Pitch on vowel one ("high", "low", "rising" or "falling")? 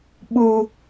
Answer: low